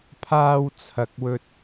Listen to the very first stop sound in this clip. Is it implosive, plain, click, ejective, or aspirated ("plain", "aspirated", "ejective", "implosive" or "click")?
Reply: aspirated